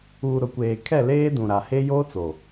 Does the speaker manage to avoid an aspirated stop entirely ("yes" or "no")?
no